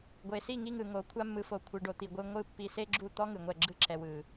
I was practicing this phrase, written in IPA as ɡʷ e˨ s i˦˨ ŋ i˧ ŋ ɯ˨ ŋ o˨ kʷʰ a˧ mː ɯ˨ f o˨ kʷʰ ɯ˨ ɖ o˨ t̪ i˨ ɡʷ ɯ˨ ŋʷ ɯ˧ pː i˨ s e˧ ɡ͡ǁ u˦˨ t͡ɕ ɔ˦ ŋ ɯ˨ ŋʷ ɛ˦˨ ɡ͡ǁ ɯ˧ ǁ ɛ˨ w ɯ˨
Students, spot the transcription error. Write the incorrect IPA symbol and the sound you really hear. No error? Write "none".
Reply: t͡ɕ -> t̪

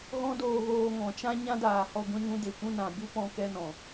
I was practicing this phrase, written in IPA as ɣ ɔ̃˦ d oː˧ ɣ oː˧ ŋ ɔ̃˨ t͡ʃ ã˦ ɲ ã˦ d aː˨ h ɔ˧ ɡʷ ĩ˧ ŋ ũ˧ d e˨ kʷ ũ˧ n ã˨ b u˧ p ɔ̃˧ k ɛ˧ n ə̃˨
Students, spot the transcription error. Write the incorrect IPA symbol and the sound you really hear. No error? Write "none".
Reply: ə̃˨ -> ɔ̃˨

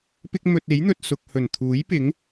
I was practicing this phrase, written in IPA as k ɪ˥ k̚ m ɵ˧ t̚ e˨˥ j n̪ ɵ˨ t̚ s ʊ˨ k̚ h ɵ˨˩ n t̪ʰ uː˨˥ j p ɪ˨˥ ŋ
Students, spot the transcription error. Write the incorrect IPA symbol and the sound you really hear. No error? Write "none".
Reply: k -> p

